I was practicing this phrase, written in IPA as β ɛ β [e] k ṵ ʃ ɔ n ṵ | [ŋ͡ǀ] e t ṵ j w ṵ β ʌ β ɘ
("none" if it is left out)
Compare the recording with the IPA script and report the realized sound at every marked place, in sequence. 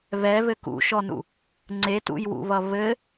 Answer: ɘ, ŋ͡ǀ

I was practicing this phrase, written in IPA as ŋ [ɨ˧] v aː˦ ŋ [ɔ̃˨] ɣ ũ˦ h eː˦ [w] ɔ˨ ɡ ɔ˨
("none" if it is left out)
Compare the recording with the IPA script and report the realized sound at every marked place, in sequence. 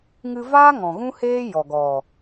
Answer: ɨ˧, ɔ̃˨, j

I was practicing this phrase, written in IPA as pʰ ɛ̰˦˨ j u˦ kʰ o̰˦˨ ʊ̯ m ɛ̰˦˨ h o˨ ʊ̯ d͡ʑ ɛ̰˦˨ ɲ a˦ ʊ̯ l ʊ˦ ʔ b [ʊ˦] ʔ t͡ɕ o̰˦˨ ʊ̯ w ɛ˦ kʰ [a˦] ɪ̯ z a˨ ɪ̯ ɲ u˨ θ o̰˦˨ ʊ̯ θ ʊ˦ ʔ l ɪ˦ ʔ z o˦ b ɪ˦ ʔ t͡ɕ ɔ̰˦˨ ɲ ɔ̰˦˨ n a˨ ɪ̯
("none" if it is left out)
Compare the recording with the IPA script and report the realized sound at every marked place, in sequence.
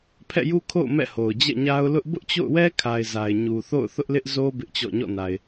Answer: ʊ˦, a˨

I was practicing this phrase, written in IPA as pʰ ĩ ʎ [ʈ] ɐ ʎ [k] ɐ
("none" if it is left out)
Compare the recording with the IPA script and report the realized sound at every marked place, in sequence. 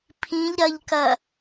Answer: ɾ, k

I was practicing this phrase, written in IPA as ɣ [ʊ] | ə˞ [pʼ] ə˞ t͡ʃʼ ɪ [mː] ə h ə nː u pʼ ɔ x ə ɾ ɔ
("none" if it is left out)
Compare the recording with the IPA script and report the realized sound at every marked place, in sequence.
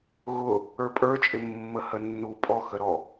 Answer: ʊ, pʼ, mː

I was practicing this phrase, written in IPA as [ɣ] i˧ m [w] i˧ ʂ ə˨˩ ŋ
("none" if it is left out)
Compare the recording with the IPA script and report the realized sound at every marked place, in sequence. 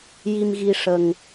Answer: j, ɣ

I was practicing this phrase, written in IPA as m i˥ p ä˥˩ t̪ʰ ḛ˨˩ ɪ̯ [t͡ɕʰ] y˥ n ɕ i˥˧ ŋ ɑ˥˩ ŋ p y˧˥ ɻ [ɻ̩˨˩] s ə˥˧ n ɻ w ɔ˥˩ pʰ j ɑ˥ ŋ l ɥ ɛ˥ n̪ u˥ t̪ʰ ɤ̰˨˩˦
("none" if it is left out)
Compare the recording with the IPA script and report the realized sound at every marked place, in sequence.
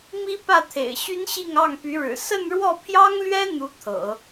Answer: ɕ, ɻ̩˨˩

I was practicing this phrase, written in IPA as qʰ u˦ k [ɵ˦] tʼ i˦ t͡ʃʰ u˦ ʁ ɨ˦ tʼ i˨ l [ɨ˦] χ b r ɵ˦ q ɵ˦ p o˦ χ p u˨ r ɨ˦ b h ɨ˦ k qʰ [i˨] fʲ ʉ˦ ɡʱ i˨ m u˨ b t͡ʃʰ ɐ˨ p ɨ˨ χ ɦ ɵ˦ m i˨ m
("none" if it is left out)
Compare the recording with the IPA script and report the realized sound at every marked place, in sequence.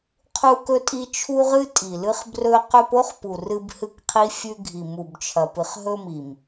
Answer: ɵ˦, ɨ˦, i˦

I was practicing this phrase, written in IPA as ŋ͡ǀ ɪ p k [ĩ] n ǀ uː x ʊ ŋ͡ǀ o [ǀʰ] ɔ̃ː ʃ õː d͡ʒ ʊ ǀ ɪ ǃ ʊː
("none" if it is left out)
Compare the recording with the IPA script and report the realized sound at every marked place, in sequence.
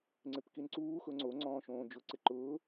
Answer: i, ŋ͡ǀ

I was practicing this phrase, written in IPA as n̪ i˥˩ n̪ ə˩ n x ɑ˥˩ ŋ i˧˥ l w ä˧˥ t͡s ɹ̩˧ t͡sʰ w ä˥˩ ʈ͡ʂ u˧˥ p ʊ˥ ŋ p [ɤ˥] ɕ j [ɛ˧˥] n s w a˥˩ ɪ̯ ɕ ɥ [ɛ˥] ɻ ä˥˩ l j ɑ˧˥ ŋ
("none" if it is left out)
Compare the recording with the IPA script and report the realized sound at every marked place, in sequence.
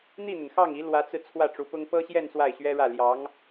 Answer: ɤ˥, ɛ˥˧, ɛ˥

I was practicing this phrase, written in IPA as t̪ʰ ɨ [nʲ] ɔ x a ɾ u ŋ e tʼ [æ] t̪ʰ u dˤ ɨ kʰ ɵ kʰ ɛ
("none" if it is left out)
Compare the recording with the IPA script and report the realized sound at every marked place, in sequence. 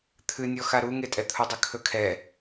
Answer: nʲ, ɛ

